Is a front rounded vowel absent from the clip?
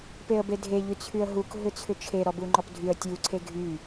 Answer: no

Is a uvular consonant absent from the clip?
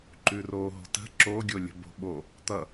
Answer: yes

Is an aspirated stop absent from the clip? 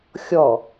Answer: yes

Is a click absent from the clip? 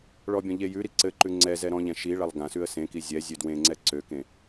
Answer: no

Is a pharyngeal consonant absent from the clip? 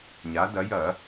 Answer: yes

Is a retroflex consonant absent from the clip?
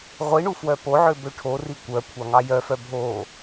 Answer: no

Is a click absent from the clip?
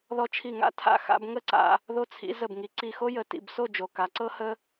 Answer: no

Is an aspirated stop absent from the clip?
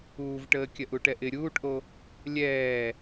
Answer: yes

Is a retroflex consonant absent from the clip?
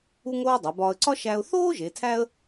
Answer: yes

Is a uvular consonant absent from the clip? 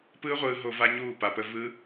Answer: no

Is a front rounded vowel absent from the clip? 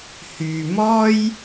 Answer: no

